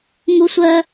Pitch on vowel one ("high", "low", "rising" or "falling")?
high